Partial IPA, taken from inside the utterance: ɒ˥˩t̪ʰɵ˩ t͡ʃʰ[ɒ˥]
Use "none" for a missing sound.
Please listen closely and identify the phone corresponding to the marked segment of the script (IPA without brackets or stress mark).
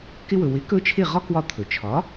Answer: ɒ˩˥